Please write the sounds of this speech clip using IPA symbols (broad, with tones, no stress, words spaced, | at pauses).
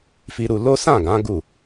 fi˧ɾu˧lo˦ sã˦˨ɡã˨˦ ɡu˦˨